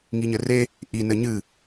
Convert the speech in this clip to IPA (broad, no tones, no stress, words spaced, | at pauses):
ŋiɲɘre | ʔi nɘɲɨ